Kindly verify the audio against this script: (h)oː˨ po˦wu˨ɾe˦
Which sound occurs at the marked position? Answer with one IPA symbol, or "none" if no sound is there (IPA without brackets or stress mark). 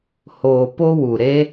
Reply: h